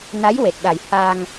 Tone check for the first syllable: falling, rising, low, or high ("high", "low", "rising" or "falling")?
rising